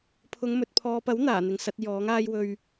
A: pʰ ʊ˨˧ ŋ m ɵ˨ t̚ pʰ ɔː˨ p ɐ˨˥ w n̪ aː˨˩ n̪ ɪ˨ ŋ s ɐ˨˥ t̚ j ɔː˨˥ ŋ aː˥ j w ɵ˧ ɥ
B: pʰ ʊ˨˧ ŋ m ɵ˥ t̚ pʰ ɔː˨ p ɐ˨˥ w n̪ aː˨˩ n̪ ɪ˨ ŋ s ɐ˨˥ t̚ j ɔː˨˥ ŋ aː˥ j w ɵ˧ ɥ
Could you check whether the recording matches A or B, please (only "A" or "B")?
A